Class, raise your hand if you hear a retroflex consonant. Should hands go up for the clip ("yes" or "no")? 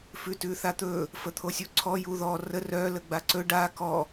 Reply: yes